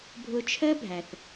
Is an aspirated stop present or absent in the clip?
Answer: present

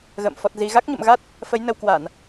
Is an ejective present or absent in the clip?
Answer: absent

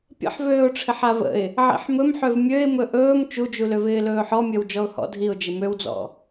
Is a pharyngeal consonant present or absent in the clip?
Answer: present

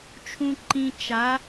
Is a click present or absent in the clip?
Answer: present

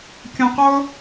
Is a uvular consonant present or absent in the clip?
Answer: present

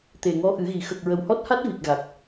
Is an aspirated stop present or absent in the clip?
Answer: absent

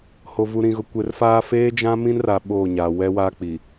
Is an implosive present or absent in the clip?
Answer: present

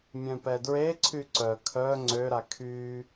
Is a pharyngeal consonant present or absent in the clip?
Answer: absent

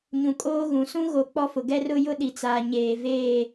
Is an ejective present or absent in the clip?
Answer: present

